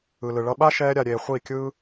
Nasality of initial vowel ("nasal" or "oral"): oral